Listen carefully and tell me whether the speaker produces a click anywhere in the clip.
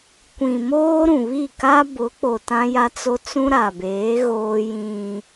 no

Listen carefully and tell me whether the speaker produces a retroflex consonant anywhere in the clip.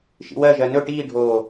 yes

